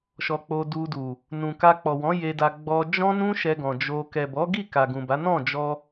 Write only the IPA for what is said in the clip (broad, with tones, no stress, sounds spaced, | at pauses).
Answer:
ʃ ɔ˧ k͡p o˧ d u˧ d u˨ | n ũ˨ k a˧ k͡p ɔ˨ w ɔ̃˨˦ j e˧ d a˧ ɡ͡b ɔ˧ d͡ʒ ɔ̃˦ n ũ˦ ʃ ɛ˧ ɡ ɔ̃˨ d͡ʒ o˧ k ɛ˨ b ɔ˨˦ ɡ i˦˨ k a˨ ɡ ũ˨ b a˨˦ n ɔ̃˦˨ d͡ʒ ɔ˧